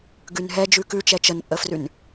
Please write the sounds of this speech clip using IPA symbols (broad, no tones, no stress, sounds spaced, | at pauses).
ɡ ʉ n ɦ ɛ d͡ʒ ʉ k ʉ t͡ʃ ɛ t͡ʃ ə n pʼ ə f r ʉ n